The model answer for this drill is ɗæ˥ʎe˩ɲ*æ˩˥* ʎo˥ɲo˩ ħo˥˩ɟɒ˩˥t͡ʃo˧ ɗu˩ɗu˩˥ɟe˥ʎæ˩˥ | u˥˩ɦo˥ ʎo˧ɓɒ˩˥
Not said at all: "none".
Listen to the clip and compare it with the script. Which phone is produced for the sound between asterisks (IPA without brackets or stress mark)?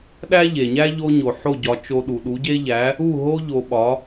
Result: æ˥